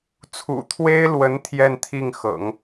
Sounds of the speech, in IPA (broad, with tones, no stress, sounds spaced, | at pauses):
t͡sʰ ṵ˨˩ t̪ʰ w e˥ ɪ̯ l w ə˧˥ n t̪ʰ j ɛ˥˧ n t̪ʰ i˥˩ ŋ x ɤ̰˨˩˦ ŋ